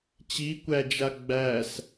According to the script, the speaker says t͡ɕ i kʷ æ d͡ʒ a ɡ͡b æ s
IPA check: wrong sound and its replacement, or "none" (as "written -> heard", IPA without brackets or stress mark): none